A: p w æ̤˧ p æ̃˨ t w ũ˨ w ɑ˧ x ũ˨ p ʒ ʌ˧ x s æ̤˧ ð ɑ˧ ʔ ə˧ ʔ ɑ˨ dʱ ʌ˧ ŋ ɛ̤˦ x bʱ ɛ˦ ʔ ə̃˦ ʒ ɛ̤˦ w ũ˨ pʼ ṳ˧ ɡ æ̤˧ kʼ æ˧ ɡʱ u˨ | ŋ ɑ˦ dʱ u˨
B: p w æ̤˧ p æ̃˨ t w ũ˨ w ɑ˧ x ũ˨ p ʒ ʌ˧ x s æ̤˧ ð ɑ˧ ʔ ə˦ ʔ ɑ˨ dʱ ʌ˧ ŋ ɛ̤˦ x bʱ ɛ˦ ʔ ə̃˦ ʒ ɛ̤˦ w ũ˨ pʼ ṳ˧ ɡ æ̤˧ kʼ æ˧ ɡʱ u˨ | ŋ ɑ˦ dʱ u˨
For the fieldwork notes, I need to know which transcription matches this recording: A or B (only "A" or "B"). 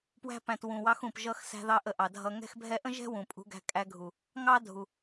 A